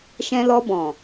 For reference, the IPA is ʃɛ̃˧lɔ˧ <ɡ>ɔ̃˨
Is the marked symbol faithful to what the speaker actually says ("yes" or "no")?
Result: no